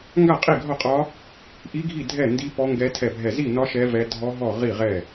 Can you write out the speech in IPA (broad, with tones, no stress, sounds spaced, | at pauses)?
ŋ ɡ a˥˨ qʼ i˥˨ ɡʱ ɒ˥˨ qʼ ɒ˦˥ | ʔ i˦˥ ɡʱ i˥˨ dʱ ɛ˥˨ n d i˦˥ p ɔ˦˥ ŋ ɡ ɛ˦˥ tʰ ɛ˥˨ bʱ ɛ˥˨ z i˥˨ n ɒ˦˥ ʃ ɛ˦˥ v ɛ˦˥ dʱ ɔ˦˥ ɦ ɔ˥˨ ʁ i˥˨ ʁ ɛ˥˨